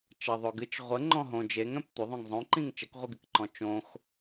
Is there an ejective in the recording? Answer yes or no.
no